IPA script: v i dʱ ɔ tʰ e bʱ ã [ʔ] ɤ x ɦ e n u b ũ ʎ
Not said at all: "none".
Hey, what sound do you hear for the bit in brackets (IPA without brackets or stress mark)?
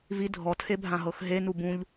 ɦ